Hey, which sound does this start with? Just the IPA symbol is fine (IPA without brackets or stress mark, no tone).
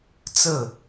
t͡s